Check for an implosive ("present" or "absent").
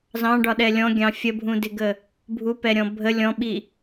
present